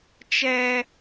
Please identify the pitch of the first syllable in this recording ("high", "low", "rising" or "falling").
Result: high